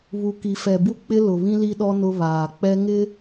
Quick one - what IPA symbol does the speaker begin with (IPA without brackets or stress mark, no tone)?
β